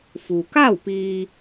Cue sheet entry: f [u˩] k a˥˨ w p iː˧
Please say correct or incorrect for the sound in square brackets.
correct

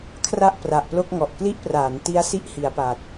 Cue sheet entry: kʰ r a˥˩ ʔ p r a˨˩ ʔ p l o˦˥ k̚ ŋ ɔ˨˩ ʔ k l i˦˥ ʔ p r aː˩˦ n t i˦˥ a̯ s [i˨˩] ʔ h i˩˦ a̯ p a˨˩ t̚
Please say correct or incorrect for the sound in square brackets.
incorrect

